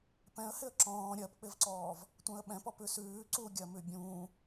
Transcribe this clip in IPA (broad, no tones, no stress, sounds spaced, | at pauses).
p ɛ̃ ə̯ h ɪ ə̯ ǁ ɔ̃ː ɾʲ ɜ p k͡p ɪ v ǀ ɔː v | tʷ ɛ̃ ə̯ ɓ ɛ̃ p ɔ p ʉ s ʉː ǀ u ɡʲ ɜ m ʉ bʲ ũː